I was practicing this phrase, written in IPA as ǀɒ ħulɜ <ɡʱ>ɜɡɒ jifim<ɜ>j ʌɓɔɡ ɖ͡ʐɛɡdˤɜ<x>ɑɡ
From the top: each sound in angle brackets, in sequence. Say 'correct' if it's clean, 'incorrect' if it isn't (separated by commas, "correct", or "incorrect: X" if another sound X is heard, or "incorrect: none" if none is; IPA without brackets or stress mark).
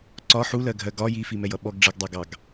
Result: correct, incorrect: ɛ, incorrect: ɡ